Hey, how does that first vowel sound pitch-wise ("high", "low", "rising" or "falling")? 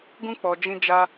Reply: high